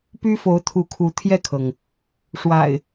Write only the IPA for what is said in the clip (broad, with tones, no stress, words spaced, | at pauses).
py˦fo˨˦ʊ̯t̪ʰu˨˦kʰu˨˦ t̪ʰjɛ˥˨kʰɤ˩ŋ | ʂwa̰˨˩ɪ̯